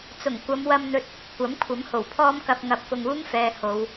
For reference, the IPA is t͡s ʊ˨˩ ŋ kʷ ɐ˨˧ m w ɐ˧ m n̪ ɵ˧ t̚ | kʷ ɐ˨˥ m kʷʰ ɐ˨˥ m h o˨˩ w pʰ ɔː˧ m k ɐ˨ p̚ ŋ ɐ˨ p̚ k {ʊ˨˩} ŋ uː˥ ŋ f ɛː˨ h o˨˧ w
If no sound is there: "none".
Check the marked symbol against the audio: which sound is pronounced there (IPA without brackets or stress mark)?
ʊ˨